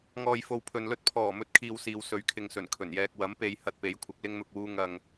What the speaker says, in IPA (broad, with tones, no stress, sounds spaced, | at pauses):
ŋ ɔː˨ j f o˨ w pʰ ɵ˨ n l ɵ˥ t̚ pʰ ɔː˨˩ m ɵ˥ t̚ kʰ iː˧ w s iː˨˧ w s ɵ˨˥ ɥ kʰ ɪ˨ ŋ s ɵ˨˩ n kʰ ɵ˨˩ n j ɛː˧ k̚ w ɐ˨˥ m p e˨˧ j h ɐ˧ t̚ p e˨˥ j kʷʰ ɐ˨˥ k̚ l ɪ˥ ŋ n̪ ʊ˧ k̚ w uː˥ ŋ ɐ˧ ŋ